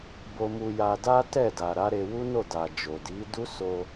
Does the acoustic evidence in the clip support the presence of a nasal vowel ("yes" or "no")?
no